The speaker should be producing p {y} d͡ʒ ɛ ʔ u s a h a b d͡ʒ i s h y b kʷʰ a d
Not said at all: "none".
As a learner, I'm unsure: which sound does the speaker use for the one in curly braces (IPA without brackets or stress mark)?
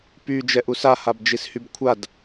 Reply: y